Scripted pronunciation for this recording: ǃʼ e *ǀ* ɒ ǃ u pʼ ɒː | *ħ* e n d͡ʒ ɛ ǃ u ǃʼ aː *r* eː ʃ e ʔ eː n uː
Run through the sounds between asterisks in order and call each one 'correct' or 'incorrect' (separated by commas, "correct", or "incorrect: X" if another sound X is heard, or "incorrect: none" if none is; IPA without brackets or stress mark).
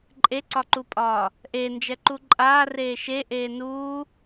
correct, incorrect: ʔ, correct